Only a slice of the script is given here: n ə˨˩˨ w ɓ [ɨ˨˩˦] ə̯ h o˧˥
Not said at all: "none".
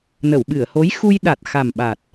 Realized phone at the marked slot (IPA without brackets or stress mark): ɨ˨˩˨